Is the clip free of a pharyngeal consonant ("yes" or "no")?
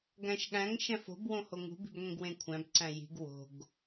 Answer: yes